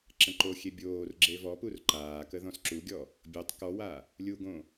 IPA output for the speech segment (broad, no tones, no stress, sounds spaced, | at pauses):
ǁ ə̃ ǃ o xʲ e bʲ oː r ɡ͡ǁ e v ɔ p u r ǃ aː k ə ð ɔ̃ s ǁ u ɡʲ ɔ | bʲ o tˤ k ɔ w a | lʲ u ɡ õ